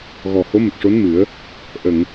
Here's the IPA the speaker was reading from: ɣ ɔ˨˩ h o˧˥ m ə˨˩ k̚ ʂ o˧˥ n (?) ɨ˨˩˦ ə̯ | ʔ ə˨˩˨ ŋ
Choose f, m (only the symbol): m